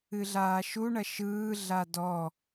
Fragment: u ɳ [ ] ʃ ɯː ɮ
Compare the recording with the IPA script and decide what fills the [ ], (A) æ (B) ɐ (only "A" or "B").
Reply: B